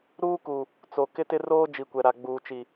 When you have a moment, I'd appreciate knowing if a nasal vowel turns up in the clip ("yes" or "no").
no